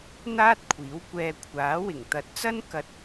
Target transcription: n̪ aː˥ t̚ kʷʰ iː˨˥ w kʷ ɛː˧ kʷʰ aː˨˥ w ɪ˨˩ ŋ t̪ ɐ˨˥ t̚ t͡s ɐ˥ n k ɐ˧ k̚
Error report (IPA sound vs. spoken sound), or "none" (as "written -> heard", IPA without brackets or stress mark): k̚ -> t̚